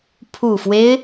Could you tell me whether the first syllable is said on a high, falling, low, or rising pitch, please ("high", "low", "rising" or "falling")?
low